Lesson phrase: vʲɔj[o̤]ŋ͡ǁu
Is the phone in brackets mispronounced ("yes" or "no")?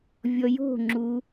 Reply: no